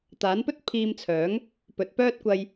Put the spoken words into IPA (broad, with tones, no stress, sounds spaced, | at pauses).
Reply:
t̪ aː˨˥ n p ɵ˥ t̚ pʰ iː˧ m t͡sʰ œː˨˥ ŋ | p ɵ˨˥ t̚ p œː˥ t̚ kʷ ɐ˧ j